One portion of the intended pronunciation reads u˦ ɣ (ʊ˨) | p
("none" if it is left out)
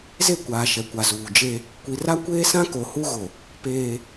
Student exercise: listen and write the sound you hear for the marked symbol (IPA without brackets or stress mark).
ʊ˨